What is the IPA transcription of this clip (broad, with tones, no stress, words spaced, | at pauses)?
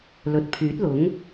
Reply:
lɵ˨t̚ pʰyː˨˥t̚lʊ˨˥ŋ